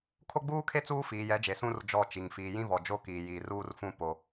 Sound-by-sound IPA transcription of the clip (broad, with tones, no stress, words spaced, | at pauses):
kʰo˦ɡ͡buː˦kʰe˦ t͡suː˦fiː˨jɛ˨˦d͡ʒe˨ sũ˦r d͡ʒɔ˦˨t͡ʃi˨ŋ fiː˨jĩ˦vɔ˨ d͡ʒo˦kiː˨jiː˨ruː˦r fũ˦ po˨